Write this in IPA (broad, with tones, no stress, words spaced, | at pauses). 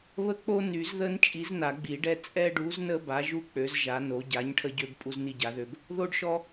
βə˦k͡po˦ ny˨˩˦zðə˦n t͡ʃʼi˨˥zna˨˩˦ɡ͡bi˨˩˦ɖɛ˦ t͡sʼɛ˦ɖu˨˥znə˦ ba˨˥ʒu˦ k͡pø˨˥zʒa˨˥no˨˥ ɟa˨˥ɲ ʈʰə˦ɟø˦b pʼu˦zni˦ɟa˨˥ðø˦b | ðo˦ɖʃɔ˦